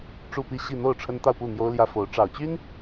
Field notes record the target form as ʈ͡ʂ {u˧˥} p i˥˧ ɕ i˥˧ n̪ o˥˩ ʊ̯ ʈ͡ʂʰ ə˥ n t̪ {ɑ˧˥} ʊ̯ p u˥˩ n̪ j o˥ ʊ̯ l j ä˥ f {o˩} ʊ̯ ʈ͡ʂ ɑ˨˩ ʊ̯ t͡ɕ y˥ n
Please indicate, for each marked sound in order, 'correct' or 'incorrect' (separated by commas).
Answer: incorrect, incorrect, incorrect